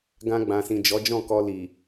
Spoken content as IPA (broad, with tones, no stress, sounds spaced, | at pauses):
ɡ ã˧ ɡ͡b ã˨ s ĩ˨ d͡ʒ ɔ˨˦ d͡ʒ ɔ̃˦˨ k ɔ˧ l i˨